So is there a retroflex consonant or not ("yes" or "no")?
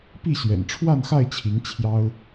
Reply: yes